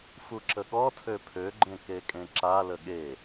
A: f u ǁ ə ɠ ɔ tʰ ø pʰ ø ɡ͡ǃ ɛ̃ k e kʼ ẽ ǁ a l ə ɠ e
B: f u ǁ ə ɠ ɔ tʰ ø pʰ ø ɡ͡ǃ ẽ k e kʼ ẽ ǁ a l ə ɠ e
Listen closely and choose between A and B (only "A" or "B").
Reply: B